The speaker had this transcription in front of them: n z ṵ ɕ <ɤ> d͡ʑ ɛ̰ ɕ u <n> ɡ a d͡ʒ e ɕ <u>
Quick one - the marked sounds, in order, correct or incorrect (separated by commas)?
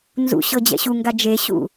correct, incorrect, incorrect